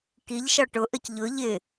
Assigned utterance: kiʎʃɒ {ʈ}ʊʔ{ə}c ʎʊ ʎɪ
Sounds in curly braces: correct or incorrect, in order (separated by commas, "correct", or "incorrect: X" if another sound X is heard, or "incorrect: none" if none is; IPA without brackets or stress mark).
correct, correct